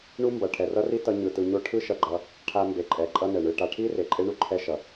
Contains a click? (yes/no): yes